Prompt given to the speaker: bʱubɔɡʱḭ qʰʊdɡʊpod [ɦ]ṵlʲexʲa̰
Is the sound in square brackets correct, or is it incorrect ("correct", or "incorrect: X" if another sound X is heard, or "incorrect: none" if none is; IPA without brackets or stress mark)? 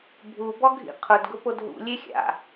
correct